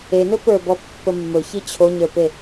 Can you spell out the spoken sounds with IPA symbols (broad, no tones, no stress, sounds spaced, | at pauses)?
e n ɵ p ə˞ b ɔ pː ə mː ɵ ç i t͡ɕʰ o ɲ ə˞ p e